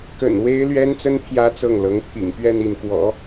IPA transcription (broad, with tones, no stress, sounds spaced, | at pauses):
k ə̰˨˩ n w e˥ ɪ̯ l ɥ ɛ˥ n t͡s ə˥ n pʰ j ä˥ t͡s ɤ˥˩ ŋ l ɤ˧˥ ŋ pʰ ḭ˨˩ ŋ p ɥ ɛ˥˧ n i˥˩ n k w ɔ̰˨˩˦